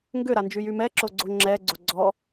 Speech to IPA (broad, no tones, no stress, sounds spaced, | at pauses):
ŋ ɡ ʏ ɾ a n d͡ʒ y j y m ɛ ǁ o ɡ͡ǀ o ŋ͡ǁ ɛ ɡ͡ǀ o ɡ͡ǀ ɔ